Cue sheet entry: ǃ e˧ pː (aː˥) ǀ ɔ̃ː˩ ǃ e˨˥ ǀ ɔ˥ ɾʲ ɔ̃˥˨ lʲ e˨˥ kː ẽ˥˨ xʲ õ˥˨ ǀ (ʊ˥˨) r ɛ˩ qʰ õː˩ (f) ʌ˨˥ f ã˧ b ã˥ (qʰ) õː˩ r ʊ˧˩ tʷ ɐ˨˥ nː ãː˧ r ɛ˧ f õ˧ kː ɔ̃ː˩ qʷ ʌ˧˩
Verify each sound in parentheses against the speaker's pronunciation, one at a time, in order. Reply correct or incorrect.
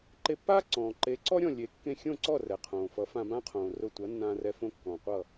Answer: correct, incorrect: ɔ˥˨, correct, correct

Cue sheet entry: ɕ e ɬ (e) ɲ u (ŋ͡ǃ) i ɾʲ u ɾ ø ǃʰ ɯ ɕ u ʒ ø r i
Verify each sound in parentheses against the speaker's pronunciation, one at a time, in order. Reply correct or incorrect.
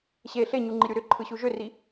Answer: correct, correct

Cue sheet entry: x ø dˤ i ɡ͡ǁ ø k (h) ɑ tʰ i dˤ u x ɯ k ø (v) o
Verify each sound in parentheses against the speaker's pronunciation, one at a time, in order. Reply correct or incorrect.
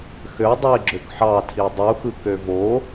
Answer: incorrect: ħ, correct

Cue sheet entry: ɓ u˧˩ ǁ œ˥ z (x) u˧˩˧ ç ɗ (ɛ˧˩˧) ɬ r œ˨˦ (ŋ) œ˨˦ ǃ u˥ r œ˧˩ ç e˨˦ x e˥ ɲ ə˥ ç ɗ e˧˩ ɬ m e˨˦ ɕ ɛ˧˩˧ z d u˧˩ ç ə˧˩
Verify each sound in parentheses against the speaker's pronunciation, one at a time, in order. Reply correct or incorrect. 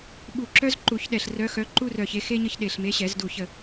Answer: incorrect: ǃ, incorrect: ɛ˧˩, incorrect: x

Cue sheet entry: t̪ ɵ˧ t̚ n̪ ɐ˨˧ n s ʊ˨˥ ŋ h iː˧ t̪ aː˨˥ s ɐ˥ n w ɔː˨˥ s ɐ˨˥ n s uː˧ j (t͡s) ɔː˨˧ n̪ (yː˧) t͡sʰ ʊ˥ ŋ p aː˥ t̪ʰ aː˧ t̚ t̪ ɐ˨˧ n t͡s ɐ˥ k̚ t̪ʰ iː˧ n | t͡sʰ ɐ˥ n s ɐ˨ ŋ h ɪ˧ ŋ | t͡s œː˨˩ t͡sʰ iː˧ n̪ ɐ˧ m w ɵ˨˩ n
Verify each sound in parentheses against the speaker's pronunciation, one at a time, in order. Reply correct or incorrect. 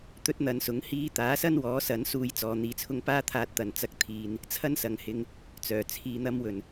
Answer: correct, incorrect: iː˧

